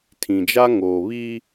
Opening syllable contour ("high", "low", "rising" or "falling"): low